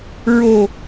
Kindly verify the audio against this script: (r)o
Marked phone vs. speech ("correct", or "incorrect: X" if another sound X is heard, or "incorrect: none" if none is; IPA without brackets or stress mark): incorrect: ɹ